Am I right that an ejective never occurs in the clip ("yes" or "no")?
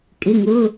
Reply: no